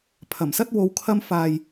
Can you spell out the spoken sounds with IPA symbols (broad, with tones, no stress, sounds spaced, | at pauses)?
pʰ ɐ˨˩ m s ɐ˥ t̚ w o˧ w kʰ ɐ˧ m f aː˨ j